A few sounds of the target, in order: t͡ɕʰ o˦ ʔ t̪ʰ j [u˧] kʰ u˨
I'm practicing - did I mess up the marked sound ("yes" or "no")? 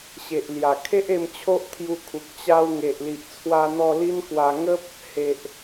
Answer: no